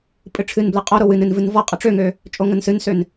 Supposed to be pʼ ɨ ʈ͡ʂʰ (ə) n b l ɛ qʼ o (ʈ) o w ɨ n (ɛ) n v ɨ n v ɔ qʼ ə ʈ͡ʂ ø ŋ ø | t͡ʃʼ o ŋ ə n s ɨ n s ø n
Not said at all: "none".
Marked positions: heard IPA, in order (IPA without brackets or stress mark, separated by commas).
ɨ, ɾ, ɨ